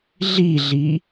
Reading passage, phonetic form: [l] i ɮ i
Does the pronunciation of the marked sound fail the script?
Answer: yes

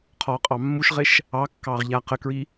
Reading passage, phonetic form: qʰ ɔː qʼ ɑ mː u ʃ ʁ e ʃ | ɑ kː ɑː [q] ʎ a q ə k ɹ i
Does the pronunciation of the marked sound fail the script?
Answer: yes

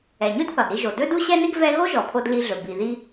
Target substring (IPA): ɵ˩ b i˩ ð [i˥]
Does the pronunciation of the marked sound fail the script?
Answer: yes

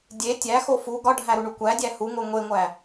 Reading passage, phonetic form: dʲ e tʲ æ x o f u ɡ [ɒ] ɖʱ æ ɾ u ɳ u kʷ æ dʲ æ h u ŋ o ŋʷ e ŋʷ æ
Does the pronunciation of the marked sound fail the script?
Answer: no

